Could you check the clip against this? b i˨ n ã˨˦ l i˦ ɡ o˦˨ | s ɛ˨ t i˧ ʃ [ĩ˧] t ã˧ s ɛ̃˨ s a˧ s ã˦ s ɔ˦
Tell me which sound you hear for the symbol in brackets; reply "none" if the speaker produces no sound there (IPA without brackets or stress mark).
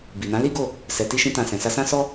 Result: ĩ˧